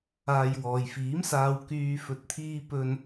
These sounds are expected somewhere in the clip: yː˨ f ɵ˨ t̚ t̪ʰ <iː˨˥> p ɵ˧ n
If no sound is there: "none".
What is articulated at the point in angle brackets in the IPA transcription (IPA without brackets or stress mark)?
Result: iː˧